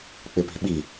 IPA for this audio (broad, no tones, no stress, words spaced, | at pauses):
k͡pɪpi̤ɓi